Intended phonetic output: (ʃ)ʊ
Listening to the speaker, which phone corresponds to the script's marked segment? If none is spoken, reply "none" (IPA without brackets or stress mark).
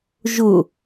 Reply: ʒ